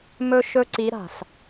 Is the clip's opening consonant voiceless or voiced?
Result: voiced